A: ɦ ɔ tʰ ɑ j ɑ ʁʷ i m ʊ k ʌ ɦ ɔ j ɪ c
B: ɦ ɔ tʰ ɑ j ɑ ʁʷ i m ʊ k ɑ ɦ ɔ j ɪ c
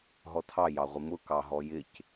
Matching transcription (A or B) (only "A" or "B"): B